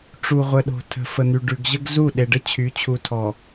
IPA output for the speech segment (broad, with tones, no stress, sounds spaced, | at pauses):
ʈ͡ʂ u˨ ʁʷ ə˨ ɗ o̤˨ tʰ ə̤˨ f ə˨ n̪ y˨ ɖ ʉ˨ ɡ ʑ ə˦ ɡ z u˦˨ ɗ e˨ ɖ ə˦ t͡ɕʰ y˨˦ t͡ɕʰ u˨ tʰ ɔ˨